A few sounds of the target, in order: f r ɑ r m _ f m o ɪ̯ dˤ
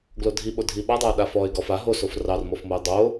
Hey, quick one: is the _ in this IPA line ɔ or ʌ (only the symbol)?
ɔ